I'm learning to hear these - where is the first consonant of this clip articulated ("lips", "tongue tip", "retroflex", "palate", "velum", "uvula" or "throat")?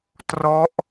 tongue tip